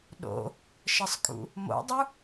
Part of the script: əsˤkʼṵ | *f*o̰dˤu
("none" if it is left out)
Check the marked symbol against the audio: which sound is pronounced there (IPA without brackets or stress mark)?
m